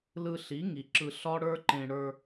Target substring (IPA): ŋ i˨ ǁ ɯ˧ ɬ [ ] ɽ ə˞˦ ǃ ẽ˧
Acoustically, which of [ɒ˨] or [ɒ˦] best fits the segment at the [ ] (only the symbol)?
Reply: ɒ˦